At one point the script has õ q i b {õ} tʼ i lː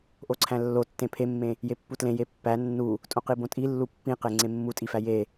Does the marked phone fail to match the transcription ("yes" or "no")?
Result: no